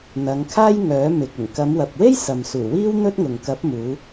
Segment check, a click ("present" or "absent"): absent